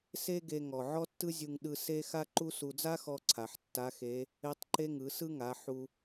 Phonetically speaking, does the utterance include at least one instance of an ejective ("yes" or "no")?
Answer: no